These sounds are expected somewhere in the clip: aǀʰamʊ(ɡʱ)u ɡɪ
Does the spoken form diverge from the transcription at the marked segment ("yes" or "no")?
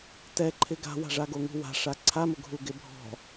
no